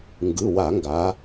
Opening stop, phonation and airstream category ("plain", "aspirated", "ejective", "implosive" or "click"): plain